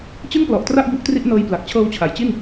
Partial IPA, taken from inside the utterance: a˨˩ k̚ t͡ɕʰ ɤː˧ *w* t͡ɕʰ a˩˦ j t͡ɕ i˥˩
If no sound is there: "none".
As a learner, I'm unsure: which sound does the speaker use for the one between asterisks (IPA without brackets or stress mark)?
w